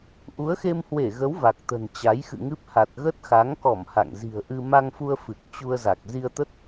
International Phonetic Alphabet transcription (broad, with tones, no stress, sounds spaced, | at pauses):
ʔ u˨˦ ə̯ x e˧ m h w e˧˩ ɣ ə˨˦ w v a˨˩ k̚ t̪ ə̤˨˩ n t͡ɕ a˨˦ j x ɨ̰˧˨ ŋ ɨ˦˥ p̚ h a˨˩ t̚ ɣ ə˦˥ t̚ x a˨˦ ŋ k ɔ˧˩ m h a̰˧˨ ŋ z i̤˨˩ ə̯ ʔ ɨ˧ m a˧ ŋ f u˧ ə̯ f ɨ˨˩ k̚ t͡ɕ u˧ ə̯ z a˨˩ k̚ z i˧ ə̯ t̪ ə˦˥ t̚